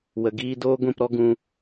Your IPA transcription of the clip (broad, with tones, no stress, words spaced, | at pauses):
wə˨ɡiː˧ doː˦ɡʷĩ˦˨pɾɔ˦ ɡũ˧